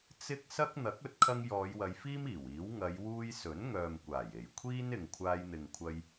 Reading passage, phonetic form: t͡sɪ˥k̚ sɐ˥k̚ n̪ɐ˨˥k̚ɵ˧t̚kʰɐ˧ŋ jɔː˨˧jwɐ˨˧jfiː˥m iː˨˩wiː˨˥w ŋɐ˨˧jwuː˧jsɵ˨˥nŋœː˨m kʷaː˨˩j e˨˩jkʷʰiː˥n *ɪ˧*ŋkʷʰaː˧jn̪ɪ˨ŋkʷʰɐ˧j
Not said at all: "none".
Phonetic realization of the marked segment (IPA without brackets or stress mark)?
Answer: ɪ˨